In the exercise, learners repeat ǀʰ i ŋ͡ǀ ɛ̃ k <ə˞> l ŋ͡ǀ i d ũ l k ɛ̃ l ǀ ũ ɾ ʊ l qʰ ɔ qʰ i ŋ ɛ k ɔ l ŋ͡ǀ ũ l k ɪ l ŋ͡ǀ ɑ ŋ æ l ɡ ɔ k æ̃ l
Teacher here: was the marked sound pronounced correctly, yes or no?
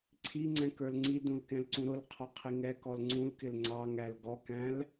yes